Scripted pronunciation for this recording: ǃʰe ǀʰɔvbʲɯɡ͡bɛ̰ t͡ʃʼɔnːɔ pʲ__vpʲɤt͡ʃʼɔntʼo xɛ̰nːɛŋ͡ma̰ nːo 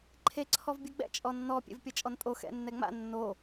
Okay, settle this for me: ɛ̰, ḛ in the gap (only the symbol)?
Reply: ḛ